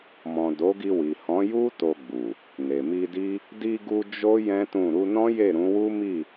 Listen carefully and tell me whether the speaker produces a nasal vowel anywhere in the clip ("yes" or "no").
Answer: yes